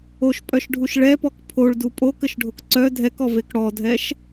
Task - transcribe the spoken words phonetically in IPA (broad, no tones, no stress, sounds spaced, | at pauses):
o ʃ pʼ œ ʃ ɖʱ u ʃ ɭ ɛ p ɔ k pʰ o ɭ d u pʼ o k ə ʃ ɖʱ o k ǀ œ dʱ ɛ k ɔ v e k ɽ ɔ dʱ ɛ ʃ